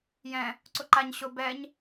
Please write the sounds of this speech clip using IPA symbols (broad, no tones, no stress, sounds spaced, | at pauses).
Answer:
j ɛ̃ | ǀ ʊ ǃ a ɲ ɕ ʊ b ɛ ɲ